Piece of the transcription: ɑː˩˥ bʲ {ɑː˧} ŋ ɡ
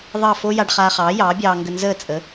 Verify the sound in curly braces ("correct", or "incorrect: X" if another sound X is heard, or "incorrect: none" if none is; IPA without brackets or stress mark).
correct